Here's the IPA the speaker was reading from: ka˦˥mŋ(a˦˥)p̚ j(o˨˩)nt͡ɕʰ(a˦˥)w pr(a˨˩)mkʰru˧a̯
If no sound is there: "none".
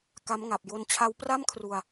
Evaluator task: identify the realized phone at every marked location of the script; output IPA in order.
a˨˩, o˧, a˦˥, a˥˩

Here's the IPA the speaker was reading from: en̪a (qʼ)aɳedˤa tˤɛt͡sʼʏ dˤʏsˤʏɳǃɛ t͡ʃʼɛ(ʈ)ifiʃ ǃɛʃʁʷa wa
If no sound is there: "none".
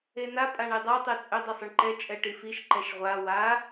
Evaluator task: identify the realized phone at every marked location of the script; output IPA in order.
pʼ, ʈ

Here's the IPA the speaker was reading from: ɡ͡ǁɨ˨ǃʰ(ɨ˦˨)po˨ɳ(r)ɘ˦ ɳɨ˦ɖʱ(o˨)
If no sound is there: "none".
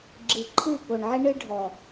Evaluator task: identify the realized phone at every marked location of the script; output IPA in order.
ɨ˦˨, ʕ, ɔ˨

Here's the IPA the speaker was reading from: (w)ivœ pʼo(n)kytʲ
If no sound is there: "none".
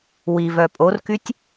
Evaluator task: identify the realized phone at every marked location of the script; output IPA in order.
w, r

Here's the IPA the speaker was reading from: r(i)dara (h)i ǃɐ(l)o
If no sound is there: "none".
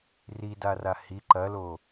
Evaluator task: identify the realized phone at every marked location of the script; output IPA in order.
i, h, l

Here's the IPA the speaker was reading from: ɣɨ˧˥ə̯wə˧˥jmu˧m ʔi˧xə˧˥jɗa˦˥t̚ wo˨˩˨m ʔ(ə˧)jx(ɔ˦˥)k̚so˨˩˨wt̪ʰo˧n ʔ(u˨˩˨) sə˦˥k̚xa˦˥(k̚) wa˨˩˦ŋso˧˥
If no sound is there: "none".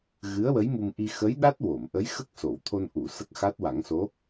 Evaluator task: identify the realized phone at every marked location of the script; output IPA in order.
ə˧˥, ə˦˥, u˨˩˨, t̚

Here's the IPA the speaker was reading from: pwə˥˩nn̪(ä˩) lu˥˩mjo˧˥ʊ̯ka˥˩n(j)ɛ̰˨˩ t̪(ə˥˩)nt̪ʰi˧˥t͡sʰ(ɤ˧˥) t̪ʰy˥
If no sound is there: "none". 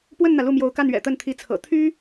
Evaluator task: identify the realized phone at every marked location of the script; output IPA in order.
ä˩, ɥ, ə˥˩, ɤ̰˨˩

